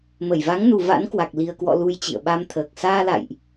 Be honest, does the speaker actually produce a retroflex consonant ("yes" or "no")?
no